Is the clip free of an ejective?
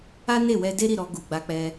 yes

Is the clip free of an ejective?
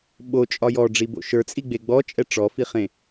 no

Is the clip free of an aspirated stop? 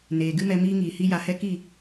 yes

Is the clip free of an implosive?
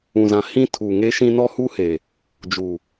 yes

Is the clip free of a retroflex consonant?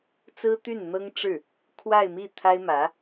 no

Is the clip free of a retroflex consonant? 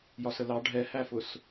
no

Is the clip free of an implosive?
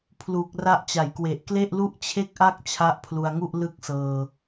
yes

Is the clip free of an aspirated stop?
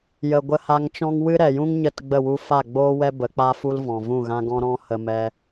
yes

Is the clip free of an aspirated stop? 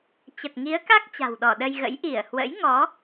yes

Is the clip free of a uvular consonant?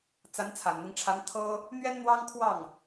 yes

